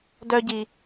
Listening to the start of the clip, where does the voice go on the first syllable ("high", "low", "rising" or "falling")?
high